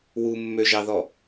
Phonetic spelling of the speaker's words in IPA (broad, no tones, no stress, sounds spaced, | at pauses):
w u mː ø ʒ ɑ ð ɔ